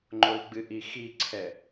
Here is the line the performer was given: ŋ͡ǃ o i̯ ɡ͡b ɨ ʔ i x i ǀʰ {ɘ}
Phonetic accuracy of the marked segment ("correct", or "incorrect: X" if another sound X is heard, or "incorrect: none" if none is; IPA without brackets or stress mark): incorrect: ɛ